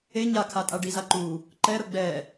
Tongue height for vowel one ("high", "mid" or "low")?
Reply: mid